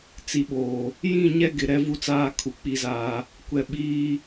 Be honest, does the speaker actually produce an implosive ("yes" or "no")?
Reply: yes